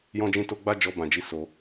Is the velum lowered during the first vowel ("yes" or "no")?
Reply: yes